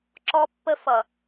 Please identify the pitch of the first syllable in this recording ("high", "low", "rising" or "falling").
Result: high